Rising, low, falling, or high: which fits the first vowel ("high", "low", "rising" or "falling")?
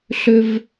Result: high